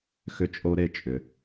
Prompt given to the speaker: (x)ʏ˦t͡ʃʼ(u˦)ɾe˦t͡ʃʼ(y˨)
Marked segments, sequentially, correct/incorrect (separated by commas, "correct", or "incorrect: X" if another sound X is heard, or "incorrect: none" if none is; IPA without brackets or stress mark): correct, incorrect: o˦, incorrect: ʏ˨